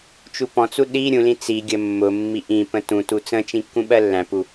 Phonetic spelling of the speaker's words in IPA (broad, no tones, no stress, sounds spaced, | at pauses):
t͡ʃ u p ɔ̃ t͡s u ɗ i ɾʲ ũ l ĩ t͡s i ɡʲ ə mː ʊ mː i ʔ ĩ p ə̃ t ũ t u t͡s ə̃ t͡ʃ ĩ kː ũ ɓ ɜ lː æ̃ p u